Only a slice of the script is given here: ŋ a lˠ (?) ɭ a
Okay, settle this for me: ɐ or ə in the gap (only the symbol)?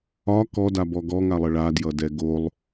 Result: ə